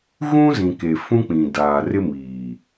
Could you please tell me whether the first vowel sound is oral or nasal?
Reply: nasal